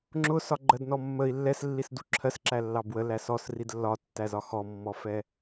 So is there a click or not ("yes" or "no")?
yes